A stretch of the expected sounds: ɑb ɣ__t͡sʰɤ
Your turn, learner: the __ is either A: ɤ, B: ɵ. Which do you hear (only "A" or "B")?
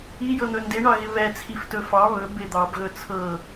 B